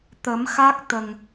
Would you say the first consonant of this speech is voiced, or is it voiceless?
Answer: voiceless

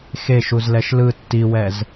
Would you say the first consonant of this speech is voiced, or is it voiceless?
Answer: voiceless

